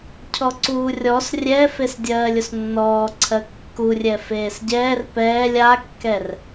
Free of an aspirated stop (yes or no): no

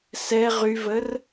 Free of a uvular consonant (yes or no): no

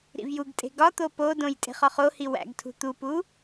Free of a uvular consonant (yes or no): no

